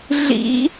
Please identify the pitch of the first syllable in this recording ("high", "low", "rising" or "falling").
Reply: rising